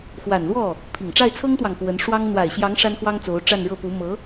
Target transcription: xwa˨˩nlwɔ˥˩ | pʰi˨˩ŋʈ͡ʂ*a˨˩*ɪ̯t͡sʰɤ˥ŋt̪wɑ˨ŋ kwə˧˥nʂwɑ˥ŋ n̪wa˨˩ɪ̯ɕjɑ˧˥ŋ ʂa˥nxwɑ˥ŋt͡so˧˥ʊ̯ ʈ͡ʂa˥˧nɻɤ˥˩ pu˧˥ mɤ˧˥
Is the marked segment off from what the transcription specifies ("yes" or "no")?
yes